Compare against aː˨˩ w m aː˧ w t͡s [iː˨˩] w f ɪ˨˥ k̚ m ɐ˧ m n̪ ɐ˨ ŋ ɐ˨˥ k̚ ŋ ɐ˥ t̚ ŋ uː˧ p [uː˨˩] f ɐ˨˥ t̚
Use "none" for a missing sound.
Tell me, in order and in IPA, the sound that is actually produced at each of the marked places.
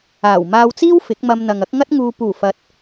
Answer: iː˥, uː˨˩

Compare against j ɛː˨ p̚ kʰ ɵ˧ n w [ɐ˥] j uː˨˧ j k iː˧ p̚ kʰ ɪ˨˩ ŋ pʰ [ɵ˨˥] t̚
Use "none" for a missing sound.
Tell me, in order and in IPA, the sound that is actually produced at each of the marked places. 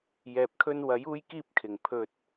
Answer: ɐ˨˥, ɵ˧

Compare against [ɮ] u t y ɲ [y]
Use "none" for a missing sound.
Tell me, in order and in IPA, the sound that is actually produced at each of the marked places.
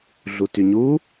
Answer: ɮ, u

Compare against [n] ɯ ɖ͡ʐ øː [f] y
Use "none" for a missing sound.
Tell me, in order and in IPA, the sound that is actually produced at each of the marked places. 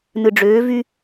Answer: n, v

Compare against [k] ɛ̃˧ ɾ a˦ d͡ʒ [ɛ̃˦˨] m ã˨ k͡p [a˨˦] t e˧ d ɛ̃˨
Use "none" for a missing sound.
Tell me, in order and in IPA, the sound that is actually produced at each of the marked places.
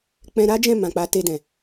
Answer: k͡p, ɛ̃˦˨, a˨˦

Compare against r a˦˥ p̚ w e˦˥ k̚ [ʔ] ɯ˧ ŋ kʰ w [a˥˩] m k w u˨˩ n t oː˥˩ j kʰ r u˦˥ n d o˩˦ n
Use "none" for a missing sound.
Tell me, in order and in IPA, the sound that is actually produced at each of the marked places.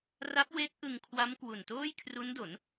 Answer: ʔ, a˦˥

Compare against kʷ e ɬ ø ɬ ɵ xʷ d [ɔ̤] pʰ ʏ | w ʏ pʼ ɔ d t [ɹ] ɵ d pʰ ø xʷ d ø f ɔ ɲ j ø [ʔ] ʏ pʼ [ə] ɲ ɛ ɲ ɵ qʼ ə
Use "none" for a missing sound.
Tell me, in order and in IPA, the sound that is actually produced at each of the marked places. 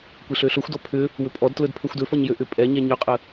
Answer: ɔ, l, ʔ, ɛ

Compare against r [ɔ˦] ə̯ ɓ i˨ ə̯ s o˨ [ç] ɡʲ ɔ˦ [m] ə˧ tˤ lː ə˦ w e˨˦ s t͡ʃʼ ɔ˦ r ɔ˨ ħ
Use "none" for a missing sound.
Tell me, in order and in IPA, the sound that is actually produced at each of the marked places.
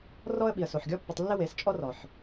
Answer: ɔ˦, ħ, pː

